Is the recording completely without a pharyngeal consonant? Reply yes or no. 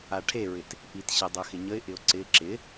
yes